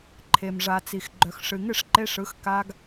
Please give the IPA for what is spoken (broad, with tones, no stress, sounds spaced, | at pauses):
ǃʰ e˨ m ʐ a˨ t͡s i˨ x ɡ͡ǃ œ˨ x ʂ ɨ˨ ŋ ɨ˦˨ ʂ ǃ e˧ ʂ ɯ˨˦ x k a˧ ɡ